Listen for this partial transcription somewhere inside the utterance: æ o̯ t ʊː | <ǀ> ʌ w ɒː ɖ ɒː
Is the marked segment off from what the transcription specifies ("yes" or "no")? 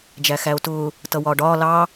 yes